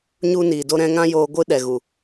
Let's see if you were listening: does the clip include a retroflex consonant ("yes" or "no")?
no